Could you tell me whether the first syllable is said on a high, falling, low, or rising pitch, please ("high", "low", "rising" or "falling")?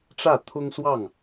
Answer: falling